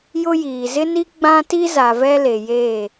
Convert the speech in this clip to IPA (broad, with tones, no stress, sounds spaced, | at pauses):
j ʊ˦ j iː˨ z ɪ˦ n i˦ ɡ͡b ã˦ t i˦ z a˨ v ɛ˦ l e˨ j eː˦˨